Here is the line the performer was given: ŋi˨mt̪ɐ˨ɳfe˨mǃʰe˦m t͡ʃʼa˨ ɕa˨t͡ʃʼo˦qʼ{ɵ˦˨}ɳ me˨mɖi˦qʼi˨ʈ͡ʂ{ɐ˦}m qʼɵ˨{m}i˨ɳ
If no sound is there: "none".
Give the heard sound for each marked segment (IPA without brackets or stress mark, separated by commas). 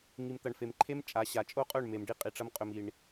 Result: ɵ˦˨, ɐ˦, m